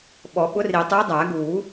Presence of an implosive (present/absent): present